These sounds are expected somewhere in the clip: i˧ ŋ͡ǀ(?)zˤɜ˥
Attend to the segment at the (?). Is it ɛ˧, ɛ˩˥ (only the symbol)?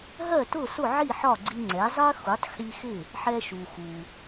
ɛ˩˥